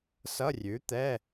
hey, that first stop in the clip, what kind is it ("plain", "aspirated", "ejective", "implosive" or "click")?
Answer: plain